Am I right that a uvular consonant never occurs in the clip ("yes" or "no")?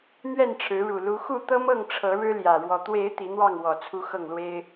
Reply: yes